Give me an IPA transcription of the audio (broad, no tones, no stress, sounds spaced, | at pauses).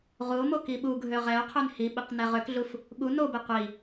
ʁ u o̯ m o k i ɓ u ɡʱ ø ʁ ɛ o̯ qʰ ø n h i ɓ i q n ɛ ʁ ø k ɮ u f | ɠ u n o b e qʷ i